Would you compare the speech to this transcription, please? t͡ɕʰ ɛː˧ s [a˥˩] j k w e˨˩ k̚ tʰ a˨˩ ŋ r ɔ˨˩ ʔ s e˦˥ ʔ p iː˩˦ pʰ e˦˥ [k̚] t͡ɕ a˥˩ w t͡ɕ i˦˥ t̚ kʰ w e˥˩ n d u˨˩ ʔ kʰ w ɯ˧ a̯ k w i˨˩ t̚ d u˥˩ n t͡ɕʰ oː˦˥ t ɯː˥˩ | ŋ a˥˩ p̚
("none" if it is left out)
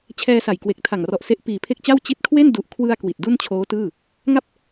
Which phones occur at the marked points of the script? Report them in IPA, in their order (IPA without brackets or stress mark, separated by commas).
a˨˩, k̚